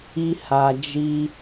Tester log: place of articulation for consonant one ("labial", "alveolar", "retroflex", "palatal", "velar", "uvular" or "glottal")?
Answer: glottal